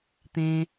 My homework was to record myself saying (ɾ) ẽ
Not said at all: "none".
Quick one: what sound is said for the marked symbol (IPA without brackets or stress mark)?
t̪